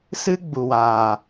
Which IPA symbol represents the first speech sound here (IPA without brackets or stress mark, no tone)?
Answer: s